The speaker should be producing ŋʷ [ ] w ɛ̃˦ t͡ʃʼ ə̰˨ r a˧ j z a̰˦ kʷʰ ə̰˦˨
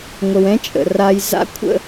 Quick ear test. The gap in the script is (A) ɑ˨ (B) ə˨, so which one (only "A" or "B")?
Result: B